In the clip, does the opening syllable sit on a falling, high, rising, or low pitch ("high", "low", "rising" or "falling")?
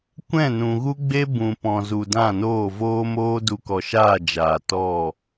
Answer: falling